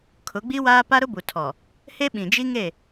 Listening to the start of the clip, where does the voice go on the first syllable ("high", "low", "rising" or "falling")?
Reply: rising